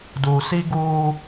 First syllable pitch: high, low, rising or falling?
low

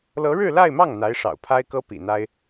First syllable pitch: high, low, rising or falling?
rising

